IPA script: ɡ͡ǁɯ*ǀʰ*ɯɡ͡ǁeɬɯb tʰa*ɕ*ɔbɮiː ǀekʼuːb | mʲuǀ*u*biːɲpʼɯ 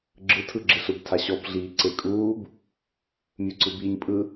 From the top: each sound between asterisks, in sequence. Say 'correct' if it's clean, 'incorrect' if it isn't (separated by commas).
incorrect, correct, incorrect